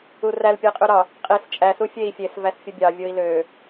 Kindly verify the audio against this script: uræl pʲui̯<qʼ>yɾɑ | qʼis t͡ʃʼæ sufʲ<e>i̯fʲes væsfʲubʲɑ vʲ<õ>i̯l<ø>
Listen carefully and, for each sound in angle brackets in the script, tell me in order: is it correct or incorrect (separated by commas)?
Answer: correct, correct, incorrect, correct